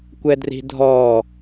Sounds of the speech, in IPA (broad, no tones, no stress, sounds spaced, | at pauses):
kʷ ɛ d r i̤ dʱ ɔ